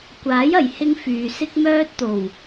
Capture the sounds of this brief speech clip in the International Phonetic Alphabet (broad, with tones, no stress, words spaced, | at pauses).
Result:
kʷaː˨˥j ɐ˨jhɪ˥ŋfyː˨ sɪ˥k̚mœː˥t̚t̪o˨˩w